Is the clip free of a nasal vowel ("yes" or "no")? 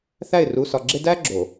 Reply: yes